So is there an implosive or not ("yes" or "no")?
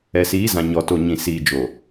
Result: no